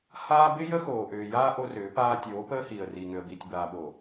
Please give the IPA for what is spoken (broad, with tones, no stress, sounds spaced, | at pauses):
h aː˦ b ɪ˦ j ə˦ x oː˨ ʔ ʏː˨ j aː˦ ʔ o˦ r ʏː˨˦ p aː˦ tʲ oː˨˦ p əː˦ h iː˨ ə̯ r iː˨ ŋ ʏ˨ ə̯ b iː˨ tʲ b aː˨ ɓ o˨